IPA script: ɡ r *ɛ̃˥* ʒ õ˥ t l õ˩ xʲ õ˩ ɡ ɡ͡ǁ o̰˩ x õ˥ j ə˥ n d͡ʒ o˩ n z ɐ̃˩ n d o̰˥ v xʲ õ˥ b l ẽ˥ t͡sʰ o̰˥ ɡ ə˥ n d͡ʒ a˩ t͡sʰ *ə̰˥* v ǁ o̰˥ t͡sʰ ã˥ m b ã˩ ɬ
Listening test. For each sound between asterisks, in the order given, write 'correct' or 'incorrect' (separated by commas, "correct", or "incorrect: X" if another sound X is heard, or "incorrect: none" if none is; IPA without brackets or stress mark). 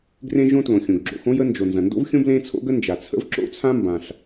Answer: incorrect: ẽ˥, correct